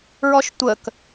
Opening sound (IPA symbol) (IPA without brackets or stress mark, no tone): ɹ